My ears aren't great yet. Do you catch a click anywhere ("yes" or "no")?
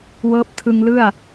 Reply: no